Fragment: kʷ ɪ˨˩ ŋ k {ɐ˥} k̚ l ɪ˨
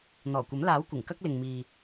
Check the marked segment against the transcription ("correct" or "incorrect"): correct